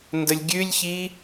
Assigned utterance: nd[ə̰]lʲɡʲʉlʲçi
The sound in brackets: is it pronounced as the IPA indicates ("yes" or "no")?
no